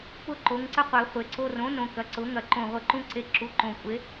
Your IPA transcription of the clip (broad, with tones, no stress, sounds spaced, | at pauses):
p ʊ˧ ǃ o˩˧ ŋ ǀ ə˧ qʷ e˩˧ χʷ e˩˧ ǀ o˧ r õ˩˥ n õ˨˩ k ɐ˩˥ ǀ ʊ˩˥ ŋ ɐ˧˩˧ ǃ õ˨˩ ʁʷ ə˧˩˧ ǃ ũ˧ ǀ e˩˥ ǁ u˩˧ ǃ õ˨˩ kʷʼ e˩˥